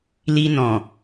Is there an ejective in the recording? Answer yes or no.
no